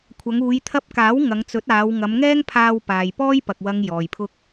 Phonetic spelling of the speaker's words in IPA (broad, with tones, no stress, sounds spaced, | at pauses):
kʷʰ ɐ˨˧ ŋ uː˨˧ j t̪ʰ ɐ˧ p̚ k aː˨˥ w ŋ ɐ˨˧ ŋ t͡s ɵ˨˥ t̚ aː˨˧ w ŋ ɐ˨˧ m ŋ ɛː˥ ŋ pʰ aː˧ w p aː˨ j p ɔː˥ j p ɐ˨ k̚ w ɐ˨ ŋ j ɔː˨ j pʰ ʊ˥ k̚